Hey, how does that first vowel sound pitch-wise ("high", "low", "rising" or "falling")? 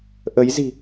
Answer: rising